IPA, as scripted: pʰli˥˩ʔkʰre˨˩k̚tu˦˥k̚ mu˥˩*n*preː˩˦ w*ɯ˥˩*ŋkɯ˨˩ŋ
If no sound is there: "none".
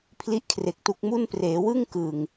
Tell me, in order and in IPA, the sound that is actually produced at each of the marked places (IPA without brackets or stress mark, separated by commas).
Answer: n, ɯ˥˩